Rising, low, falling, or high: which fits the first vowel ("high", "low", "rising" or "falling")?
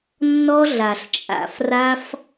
high